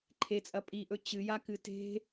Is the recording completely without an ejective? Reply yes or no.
no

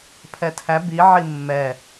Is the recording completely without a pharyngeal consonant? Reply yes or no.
no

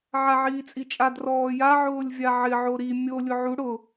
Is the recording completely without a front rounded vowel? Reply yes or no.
yes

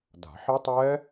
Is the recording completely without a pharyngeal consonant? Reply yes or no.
no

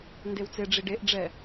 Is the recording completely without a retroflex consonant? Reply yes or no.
no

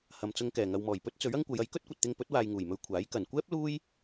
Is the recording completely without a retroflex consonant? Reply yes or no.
yes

